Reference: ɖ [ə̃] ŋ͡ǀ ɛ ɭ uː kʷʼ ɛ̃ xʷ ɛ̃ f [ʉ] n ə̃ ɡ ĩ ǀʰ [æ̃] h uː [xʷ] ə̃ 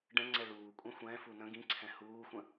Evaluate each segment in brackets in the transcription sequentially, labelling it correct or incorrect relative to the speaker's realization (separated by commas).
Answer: incorrect, incorrect, incorrect, correct